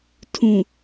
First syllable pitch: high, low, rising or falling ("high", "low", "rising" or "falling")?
low